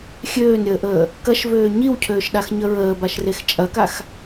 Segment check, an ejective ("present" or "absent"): present